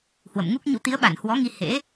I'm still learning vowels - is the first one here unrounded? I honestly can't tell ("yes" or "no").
yes